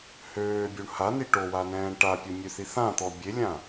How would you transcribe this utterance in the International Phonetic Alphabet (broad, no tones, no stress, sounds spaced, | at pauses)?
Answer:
h øː bʲ u ɳ h a n i ʈ o w a n ɛ̃ː ɳ ʈ a pʲ o mʲ ø θ i θ ã t̪ ɔ bʲ e lʲ ã